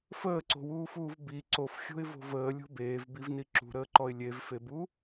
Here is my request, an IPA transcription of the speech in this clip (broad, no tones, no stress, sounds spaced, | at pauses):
f əː ǀ o̤ w uː f uː v b i ǀ o f xʲ o̤ ɪ̯ v o̤ v əː lʲ o̤ b eː v b i v n i ǁ ṳ ɾ əː ǃ ɔ ɪ̯ lʲ e v f e b u